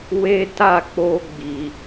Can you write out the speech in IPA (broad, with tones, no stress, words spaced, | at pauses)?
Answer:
we˦ta˦˨k͡po˧ ɡ͡bi˨